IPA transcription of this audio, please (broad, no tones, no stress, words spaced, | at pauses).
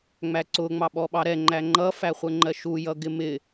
ŋ͡mæǀʊ ŋ͡mɑɓɔɓɑɾɛ ŋ͡ǃæŋ͡ǃʌ fæχʷəŋ͡ǃɜʃu jʌɡɪmɪ